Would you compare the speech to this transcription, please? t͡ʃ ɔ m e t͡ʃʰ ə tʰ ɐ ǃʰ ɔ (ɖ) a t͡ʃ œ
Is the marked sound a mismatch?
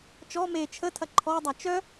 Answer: yes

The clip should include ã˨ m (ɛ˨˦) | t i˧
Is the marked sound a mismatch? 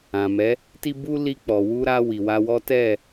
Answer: no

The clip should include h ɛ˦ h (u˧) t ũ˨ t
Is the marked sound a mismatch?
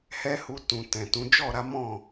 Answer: no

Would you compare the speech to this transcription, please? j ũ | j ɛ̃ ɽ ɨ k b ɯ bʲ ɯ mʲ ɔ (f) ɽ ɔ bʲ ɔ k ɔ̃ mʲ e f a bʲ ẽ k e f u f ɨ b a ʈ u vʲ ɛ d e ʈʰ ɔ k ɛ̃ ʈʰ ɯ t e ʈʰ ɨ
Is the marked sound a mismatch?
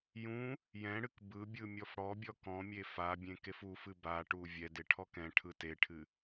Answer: no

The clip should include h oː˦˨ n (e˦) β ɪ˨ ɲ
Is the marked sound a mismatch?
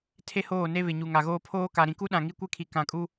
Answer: no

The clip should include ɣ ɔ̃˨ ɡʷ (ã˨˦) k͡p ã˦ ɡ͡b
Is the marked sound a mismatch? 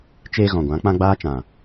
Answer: no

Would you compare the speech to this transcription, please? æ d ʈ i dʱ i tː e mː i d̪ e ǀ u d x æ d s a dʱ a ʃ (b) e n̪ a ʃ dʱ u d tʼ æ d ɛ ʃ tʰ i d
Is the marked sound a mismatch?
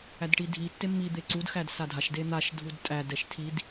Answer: yes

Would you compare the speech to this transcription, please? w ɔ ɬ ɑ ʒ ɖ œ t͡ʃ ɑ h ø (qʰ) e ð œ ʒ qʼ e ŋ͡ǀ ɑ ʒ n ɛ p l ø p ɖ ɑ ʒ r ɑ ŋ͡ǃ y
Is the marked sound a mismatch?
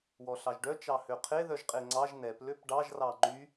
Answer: no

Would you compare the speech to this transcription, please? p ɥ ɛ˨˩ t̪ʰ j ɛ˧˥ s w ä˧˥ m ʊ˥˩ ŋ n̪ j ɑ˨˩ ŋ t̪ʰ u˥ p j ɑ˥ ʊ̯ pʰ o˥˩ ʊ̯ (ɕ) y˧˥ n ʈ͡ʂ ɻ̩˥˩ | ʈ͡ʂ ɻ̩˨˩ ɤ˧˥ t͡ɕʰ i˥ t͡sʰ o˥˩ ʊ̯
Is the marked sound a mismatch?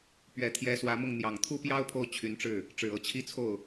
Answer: yes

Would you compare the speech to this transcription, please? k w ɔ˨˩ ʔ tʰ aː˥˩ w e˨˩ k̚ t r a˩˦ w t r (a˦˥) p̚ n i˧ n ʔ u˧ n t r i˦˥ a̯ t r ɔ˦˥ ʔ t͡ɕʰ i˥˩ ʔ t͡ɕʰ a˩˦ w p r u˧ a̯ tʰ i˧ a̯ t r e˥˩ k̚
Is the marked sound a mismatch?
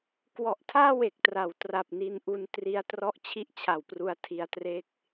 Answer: yes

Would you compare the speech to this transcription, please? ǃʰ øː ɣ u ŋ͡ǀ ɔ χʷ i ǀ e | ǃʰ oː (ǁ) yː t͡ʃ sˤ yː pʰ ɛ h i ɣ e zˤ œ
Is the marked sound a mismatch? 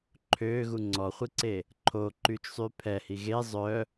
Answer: yes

